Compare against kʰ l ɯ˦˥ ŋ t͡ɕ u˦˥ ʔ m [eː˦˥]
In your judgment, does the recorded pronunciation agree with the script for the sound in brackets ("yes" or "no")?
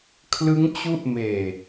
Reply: no